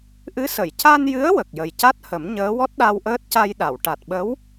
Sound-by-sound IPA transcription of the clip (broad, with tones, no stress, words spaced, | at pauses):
ʔɨ˧˥sə˨˩˨j ca˧njɨ˧˥ə̯ wə˨˩k̚jə˨˩jca˦˥t̚hə˨˩˦m ɲəː˧˥ wɔ˦˥t̚ɗa˧wʔəː˦˥t̚ ca˧jɗa˨˩˨w ʈa˨˩t̚ɓə˧˥w